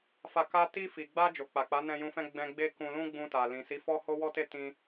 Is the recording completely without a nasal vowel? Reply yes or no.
no